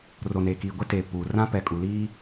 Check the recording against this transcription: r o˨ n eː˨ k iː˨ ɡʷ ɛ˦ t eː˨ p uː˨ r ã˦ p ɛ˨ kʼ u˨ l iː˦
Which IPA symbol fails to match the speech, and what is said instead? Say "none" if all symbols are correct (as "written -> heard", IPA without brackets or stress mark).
none